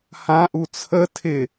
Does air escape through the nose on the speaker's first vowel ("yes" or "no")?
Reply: yes